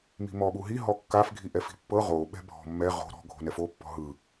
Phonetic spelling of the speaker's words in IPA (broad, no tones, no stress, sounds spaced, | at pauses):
m i̤ m ɔ ɓ u ɦ i ɦ ɔ kː a f ɡʱ i ʔ ɛ f i̤ pː ɤ ʁ o ɓ ɛ̤ bʱ ɔ̤ mː ɛ ʁ o̤ ɾ ɔ̤ ɡʱ o̤ n ɛ f o pː ɔ̤ ɦ ɯ